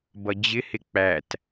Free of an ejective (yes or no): yes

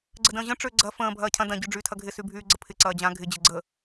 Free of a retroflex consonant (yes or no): no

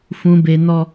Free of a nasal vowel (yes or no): no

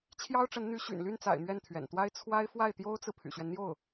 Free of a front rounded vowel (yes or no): no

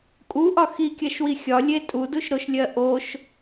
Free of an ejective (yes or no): no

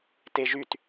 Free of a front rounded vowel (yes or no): no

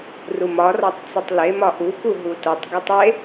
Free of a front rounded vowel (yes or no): yes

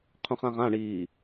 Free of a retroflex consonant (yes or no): no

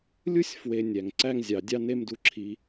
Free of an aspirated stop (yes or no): no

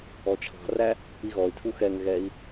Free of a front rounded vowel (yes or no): no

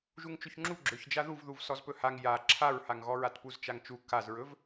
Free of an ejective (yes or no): yes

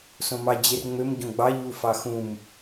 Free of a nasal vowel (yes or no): no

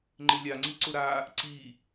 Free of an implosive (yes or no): yes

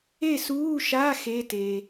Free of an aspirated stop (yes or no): yes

